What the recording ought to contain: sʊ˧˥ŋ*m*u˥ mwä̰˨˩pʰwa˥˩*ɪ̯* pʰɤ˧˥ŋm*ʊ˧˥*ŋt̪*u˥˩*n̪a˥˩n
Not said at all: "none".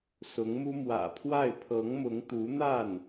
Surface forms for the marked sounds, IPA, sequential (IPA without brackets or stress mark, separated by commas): m, ɪ̯, ʊ˧˥, u˧˥